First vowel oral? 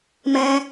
no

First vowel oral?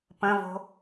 no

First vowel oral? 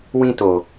no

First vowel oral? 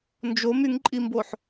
yes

